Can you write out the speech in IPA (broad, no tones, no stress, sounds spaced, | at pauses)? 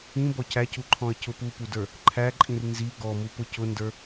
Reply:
ĩ b ɔ c æ c u ǃʰ ɔ̃ ə̯ c ʊ p u p u d ə˞ | ǃʰ æ ǃʼ ĩ r n z i ɡ ɔ m u p ʊ c ʊ n d ə˞